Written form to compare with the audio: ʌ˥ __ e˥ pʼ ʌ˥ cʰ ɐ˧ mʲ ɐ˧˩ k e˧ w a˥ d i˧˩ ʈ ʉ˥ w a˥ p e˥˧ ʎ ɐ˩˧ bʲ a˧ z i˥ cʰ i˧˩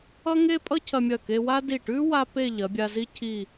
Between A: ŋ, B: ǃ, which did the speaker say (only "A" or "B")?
A